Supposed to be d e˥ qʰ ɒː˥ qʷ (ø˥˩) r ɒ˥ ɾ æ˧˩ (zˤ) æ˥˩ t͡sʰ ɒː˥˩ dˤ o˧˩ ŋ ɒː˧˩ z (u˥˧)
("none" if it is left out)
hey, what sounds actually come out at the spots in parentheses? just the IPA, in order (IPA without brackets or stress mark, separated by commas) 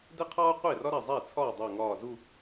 e˥˩, zˤ, u˥˧